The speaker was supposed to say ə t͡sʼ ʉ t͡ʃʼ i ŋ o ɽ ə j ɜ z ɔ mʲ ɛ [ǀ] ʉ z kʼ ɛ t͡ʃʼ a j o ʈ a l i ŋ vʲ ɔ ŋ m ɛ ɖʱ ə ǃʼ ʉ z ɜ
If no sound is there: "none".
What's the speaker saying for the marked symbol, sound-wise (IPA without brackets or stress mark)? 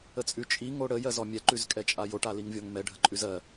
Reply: ǃ